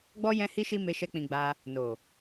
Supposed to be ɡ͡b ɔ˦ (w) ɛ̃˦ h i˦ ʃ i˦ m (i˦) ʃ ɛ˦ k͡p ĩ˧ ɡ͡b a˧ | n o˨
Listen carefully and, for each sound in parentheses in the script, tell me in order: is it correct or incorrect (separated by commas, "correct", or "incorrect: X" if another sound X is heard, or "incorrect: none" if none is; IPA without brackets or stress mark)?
incorrect: j, incorrect: e˦